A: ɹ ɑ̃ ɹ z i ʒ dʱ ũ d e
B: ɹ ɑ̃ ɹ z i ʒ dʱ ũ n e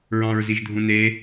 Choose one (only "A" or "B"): B